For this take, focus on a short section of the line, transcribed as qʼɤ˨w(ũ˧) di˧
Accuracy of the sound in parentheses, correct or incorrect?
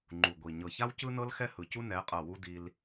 incorrect